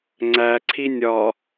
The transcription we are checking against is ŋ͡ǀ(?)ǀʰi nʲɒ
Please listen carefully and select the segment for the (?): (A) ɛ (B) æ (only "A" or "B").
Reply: B